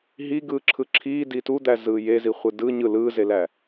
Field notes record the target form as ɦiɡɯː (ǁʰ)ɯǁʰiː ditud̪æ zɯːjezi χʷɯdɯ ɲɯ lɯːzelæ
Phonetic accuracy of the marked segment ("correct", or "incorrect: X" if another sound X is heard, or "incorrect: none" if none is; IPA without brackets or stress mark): correct